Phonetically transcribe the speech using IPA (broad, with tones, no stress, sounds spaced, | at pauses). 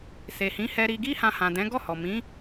s e˨ h ĩ˨˦ h ɛ˧ ɾ i˧ ɡ i˦ h ã˧ h ã˨ d ɛ̃˨˦ ɡ ɔ˦˨ h ɔ˨ m ĩ˨˦